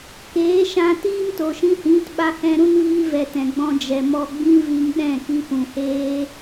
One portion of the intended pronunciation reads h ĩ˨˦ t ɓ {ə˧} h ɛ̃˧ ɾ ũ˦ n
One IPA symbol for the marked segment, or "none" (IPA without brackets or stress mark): a˧